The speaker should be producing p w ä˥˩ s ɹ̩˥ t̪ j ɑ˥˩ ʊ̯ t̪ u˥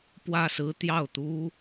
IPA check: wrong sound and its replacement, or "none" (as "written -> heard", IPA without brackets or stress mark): none